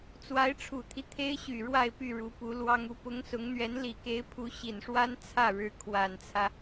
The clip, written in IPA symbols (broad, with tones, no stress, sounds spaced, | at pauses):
t͡s w a˧˥ ɪ̯ ʈ͡ʂʰ u˨˩ t̪ʰ i˦ t̪ʰ e˥ ɪ̯ ɕ y˨˩ ɻ w a˥˧ ɪ̯ p y˥˩ ɻ u˧˥ p u˧˥ l w ɑ˥ ŋ u˧˥ p ʊ˧˥ ŋ s ʊ˧˥ ŋ n̪ ɥ ɛ˧˥ n l i˨˩ k e˧˥ ɪ̯ pʰ u˧˥ ɕ i˨˩ n ʂ w a˥ n t͡sʰ ä˥˩ ɻ ɻ̩˧˥ kʰ w a˨˩ n t͡sʰ ä˦